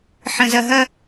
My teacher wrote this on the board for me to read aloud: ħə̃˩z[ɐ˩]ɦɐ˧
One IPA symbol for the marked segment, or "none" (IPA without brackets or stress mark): ɐ˩